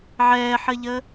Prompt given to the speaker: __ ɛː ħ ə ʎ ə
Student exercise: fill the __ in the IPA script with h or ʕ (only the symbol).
ʕ